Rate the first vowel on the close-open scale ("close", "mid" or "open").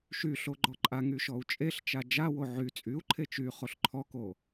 close